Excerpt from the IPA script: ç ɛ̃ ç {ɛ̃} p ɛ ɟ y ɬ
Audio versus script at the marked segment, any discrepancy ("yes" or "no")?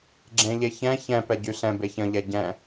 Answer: no